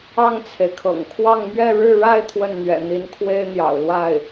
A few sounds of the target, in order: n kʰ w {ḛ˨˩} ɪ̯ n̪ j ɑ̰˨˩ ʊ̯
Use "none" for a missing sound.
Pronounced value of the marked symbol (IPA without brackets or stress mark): e˥